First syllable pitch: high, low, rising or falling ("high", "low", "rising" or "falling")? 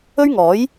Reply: high